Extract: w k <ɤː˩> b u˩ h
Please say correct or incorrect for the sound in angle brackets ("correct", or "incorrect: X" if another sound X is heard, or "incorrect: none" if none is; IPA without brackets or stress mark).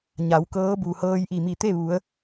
incorrect: ɤː˧˥